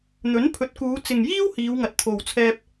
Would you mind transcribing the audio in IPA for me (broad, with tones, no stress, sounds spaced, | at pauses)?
n̪ ɵ˨˥ n pʰ ɵ˨˥ t̚ k uː˨˧ t͡s ɪ˨ ŋ j iː˥ w h iː˨˧ w ŋ ɐ˨ t̚ t̪ʰ o˨ w t͡sʰ ɛː˧ p̚